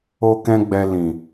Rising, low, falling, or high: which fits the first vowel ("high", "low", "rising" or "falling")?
high